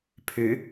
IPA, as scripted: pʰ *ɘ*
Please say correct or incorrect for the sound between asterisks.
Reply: incorrect: ʉ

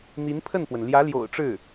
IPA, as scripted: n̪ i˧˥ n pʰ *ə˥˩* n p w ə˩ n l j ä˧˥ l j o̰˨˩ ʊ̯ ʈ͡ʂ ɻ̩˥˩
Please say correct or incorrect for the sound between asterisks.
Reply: correct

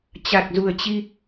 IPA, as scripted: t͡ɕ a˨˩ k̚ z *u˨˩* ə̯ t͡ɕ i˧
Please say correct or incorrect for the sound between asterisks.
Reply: correct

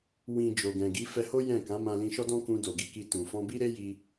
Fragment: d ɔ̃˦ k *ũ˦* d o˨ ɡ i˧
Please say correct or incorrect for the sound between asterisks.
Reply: incorrect: ũ˧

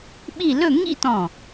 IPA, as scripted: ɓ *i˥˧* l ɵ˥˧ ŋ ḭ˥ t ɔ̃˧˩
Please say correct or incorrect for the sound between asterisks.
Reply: correct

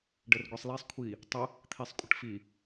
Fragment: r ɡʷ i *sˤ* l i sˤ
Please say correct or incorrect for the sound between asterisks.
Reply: correct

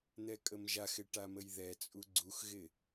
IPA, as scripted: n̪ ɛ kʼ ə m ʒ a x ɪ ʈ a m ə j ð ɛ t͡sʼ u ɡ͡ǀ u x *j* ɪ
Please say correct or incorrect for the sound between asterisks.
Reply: incorrect: ɣ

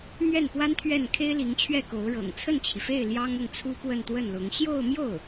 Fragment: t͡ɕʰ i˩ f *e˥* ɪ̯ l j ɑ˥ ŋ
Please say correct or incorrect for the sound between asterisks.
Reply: incorrect: e˥˩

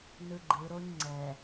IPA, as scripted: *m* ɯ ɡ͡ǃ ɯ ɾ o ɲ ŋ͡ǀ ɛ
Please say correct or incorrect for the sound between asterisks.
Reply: incorrect: n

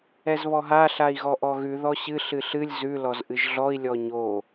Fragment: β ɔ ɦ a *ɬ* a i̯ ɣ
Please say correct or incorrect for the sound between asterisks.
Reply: correct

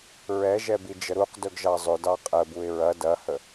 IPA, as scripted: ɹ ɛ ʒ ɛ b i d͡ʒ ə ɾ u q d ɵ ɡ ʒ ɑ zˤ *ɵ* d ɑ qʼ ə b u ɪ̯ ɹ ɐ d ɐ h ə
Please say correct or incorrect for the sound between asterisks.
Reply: correct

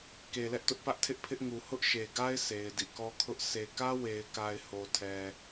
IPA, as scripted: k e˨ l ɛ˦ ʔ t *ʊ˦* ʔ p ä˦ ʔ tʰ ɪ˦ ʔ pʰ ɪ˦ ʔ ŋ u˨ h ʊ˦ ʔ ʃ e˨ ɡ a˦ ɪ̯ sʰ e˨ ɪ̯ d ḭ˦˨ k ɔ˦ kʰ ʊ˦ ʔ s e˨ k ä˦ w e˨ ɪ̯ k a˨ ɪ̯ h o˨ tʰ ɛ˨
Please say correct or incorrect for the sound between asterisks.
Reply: correct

